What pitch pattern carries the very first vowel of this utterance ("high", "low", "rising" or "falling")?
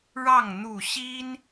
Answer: falling